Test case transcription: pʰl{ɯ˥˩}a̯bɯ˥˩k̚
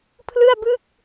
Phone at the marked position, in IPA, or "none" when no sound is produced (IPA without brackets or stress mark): ɯ˥˩